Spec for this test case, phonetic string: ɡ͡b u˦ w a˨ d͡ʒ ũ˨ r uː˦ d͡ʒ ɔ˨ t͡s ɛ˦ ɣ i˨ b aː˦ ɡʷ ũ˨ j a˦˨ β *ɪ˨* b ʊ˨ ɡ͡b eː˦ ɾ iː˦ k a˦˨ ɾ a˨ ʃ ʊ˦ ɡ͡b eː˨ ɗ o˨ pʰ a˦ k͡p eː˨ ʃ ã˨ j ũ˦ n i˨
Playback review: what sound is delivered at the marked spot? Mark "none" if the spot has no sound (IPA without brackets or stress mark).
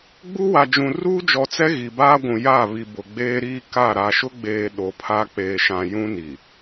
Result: i˨